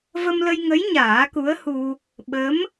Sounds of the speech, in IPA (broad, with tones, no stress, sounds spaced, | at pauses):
v ə˧ m l ə˧ j ŋ ə˧˥ j ɲ aː˨˩˦ k u˧˥ ə̯ h u˧ | ɓ ə˧˥ m